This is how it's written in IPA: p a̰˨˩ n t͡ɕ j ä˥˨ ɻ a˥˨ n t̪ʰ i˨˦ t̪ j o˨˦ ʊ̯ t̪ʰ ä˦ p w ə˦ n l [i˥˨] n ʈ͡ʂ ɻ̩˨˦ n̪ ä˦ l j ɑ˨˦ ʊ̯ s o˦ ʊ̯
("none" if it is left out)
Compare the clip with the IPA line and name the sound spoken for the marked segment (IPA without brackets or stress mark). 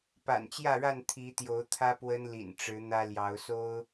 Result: ḭ˨˩